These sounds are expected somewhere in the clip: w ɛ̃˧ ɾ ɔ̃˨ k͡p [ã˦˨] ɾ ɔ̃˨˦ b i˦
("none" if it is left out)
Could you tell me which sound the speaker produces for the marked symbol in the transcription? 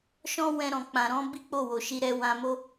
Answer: ã˨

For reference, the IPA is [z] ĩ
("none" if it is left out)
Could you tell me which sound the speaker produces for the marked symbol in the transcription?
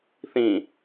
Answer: θ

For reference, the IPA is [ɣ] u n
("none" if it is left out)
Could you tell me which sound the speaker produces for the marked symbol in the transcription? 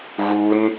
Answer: ɣ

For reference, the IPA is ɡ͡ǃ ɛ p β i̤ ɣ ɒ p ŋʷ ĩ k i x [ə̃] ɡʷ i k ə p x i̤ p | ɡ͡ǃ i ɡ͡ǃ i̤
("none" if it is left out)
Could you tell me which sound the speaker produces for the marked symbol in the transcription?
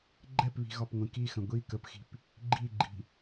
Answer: ə̃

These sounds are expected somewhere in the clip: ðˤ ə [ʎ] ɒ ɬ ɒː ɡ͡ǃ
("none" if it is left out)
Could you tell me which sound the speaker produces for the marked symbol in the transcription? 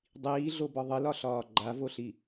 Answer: l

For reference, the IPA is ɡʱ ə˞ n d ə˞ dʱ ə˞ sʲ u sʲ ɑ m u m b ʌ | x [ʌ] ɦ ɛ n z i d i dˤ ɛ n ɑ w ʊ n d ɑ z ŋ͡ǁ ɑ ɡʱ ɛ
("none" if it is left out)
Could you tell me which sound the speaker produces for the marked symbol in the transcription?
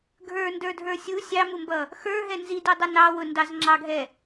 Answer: ə˞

